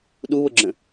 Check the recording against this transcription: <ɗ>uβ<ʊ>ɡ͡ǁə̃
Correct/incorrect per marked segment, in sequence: correct, correct

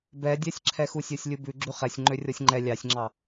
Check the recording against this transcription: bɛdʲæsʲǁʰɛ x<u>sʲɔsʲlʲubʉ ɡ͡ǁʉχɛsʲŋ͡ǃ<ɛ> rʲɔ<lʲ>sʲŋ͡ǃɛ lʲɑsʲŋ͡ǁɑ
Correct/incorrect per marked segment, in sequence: correct, incorrect: ø, incorrect: none

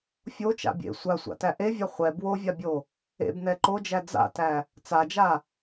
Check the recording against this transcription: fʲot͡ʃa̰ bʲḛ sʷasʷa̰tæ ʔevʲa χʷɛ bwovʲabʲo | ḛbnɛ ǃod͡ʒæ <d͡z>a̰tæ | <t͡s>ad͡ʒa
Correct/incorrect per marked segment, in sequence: correct, correct

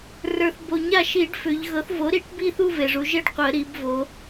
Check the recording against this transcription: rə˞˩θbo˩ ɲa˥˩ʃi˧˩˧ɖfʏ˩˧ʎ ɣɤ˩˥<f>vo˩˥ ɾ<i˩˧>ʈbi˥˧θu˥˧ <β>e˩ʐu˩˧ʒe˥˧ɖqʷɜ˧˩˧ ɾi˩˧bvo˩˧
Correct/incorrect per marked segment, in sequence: incorrect: θ, correct, incorrect: v

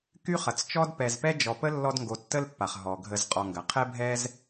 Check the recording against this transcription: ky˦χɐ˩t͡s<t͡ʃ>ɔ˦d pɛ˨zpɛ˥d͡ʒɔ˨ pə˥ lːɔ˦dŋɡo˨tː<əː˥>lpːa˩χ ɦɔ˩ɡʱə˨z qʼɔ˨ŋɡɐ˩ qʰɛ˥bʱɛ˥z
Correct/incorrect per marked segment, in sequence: correct, incorrect: ə˥

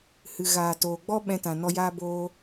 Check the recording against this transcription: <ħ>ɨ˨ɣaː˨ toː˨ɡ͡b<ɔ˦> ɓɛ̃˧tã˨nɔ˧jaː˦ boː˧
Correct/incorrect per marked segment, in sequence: incorrect: h, correct

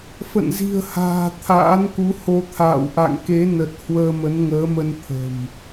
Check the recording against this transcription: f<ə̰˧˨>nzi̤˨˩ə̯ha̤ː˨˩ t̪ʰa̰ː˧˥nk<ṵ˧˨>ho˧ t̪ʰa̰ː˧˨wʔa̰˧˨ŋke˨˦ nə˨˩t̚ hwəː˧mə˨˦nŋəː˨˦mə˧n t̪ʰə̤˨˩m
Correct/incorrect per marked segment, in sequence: correct, incorrect: u˨˦

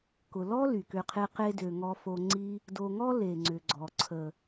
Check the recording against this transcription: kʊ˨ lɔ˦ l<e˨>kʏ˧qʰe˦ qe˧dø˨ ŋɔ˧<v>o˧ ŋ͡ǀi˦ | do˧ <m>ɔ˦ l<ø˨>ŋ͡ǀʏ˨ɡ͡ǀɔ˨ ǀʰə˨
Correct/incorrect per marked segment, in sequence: incorrect: y˨, incorrect: f, incorrect: ŋ, incorrect: e˨

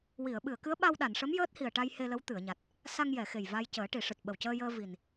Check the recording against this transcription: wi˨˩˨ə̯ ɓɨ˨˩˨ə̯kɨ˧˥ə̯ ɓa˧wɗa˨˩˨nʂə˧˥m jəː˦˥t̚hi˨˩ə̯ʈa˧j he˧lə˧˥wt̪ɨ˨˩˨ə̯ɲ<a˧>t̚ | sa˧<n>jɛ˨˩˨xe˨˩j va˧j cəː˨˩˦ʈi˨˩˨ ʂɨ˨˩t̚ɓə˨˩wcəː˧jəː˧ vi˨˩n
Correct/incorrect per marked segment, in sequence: incorrect: a˨˩, incorrect: ŋ

